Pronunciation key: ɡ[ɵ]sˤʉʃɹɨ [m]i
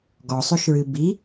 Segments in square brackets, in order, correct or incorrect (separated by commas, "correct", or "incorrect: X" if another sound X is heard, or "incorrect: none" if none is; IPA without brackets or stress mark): incorrect: ɔ, incorrect: b